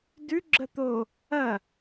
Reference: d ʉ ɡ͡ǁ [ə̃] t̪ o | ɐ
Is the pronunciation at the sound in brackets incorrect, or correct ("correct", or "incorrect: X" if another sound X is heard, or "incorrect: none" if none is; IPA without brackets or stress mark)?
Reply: incorrect: ə